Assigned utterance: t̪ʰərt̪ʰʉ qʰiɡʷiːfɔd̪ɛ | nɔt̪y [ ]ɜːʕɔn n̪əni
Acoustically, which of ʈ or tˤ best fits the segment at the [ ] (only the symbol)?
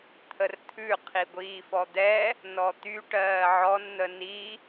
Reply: ʈ